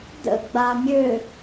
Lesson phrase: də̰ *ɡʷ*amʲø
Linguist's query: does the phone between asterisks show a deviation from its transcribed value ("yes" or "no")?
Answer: yes